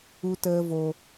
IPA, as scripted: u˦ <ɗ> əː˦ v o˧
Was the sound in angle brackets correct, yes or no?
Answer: no